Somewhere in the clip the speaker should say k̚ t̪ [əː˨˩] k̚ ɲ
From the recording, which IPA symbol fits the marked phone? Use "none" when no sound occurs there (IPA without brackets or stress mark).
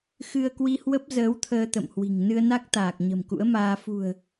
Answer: aː˨˩